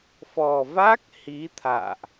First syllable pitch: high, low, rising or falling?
low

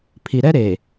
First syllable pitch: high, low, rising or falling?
low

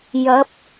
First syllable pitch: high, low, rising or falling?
rising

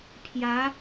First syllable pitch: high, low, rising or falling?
rising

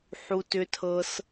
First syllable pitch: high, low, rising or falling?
low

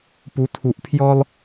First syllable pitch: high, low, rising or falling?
rising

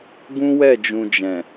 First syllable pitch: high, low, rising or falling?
high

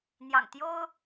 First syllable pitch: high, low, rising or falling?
low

